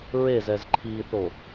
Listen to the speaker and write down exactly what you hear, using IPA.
ɹ e z ɛ z ǃʰ i θ o

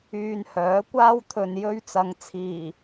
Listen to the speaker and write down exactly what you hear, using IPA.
yː˧ n h œː˨˥ kʷ aː˥ w t̪ʰ ɵ˨ n j ɵ˧ ɥ t͡s ɐ˨˧ ŋ t͡sʰ iː˨˩

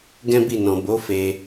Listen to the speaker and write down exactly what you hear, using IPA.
ɡ ɛ̃˦ b i˦˨ n ɔ̃˨ b o˨˦ f e˧

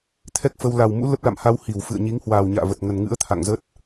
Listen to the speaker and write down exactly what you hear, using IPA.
t̪ʰ ɛ˦˥ k̚ f ə˧ w l a˨˩ w m ṵ˧˥ l ə˦˥ p̚ l a̰˧˨ m h a˧ w h i˧˩ w f ɨ̰˧˨ ə̯ ɲ i˨˦ ŋ h w aː˨˩ w ɲ a̰ː˧˨ v ə˨˩ t̚ ŋ ə˨˩ n ŋ ɨ̰˧˥ ə̯ t̪ʰ a̰˧˨ ŋ z ə˦˥ t̚

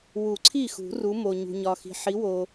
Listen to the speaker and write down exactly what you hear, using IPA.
w u˨˩˦ ǀʰ i˥˩ x ṳ˨˩˦ r u˨˦ m o˨ ɲ ṳ˨ ɲ ɒ˨ x i̤˨ ħ i˨˦ w o˨

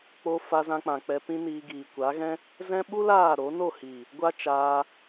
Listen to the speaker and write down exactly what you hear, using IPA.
k͡p o˧ f a˧ z ã˧ k͡p ã˨ k͡p ɛ˧ p ĩ˦ n iː˧ ɡ iː˨ kʷ a˨˦ ɣ ɛ̃˦ | z ɛ̃˦ ɓ u˦ l aː˦˨ ɾ o˨˦ n o˦˨ h iː˨ | ɡʷ a˦ t͡ʃ aː˧

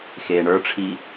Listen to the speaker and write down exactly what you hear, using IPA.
x eː ɳ ə˞ ʈ͡ʂʰ i

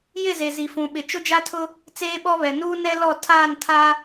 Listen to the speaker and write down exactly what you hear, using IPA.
j ɪ˦˨ z e˨ z i˨ f ũ˨ ɓ ɪ˨ t͡ʃ ʊ˦ d͡ʒ a˦ tʰ ʊ˦ | t͡s eː˦ ɓ ɔ˦ β ɛ˨ n uː˦ n ɛ˦ l ɔ˦˨ tʰ aː˦˨ n tʰ a˦

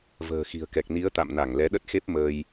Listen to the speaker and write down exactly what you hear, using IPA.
v ə̤ː˨˩ x i̤˨˩ ə̯ k ɛ˨˩ k̚ n i˨˦ ə̯ t̪ a̰˧˨ m n a˧˩ ŋ l ɛ˨˦ ɗ ə˦˥ t̚ x e˦˥ p̚ m əː˧ j

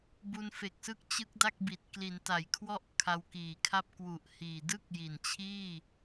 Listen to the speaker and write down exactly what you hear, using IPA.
b u˧ n f e˨˩ k̚ s ɯ˥˩ k̚ t͡ɕ ɯ˦˥ k̚ d a˥˩ k̚ b i˨˩ t̚ k l i˩˦ n t a˩˦ j kʰ w ɔ˦˥ ʔ kʰ a˧ w k iː˨˩ kʰ a˥˩ p̚ k w u˨˩ ʔ h iː˨˩ d ɯ˦˥ k̚ j i˨˩ n t͡ɕʰ iː˥˩

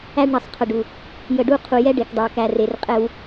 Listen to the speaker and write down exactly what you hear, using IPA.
æ˦ ɖ ɳ ə˨ sˤ qʰ ə˨ ɖ u˨ | j ə˨ ɖ u˦ qʰ u˨ j ɛ˦ ɖ e˨ k dˤ e˨ w k æ˨ r e˨ r qʼ ɛ˦ w

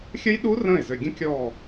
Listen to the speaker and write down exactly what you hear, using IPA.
xʲ ə˦˥ j ɗ u˦˥ r ə̃ː˥˩ ɪ̯ z ø˧˩ ɡʲ ə̃˦˥ kʲ ɔː˧˩

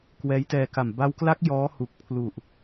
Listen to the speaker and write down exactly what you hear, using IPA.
k w ɛː˦˥ j t ɛː˧ k a˨˩ m b a˦˥ w k l a˦˥ k̚ j ɔː˦˥ h u˨˩ k̚ pʰ l u˨˩ ʔ

